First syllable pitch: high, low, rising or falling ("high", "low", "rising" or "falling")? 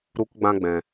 high